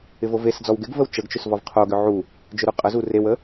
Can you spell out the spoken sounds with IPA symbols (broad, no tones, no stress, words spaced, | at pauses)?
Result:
ɪvovesd͡zɔw ɡɪɡvəw t͡ʃəɡt͡ʃʏs vɔvqʰoɡʏ ʕu | d͡ʒʏɾuqʼəzu rewə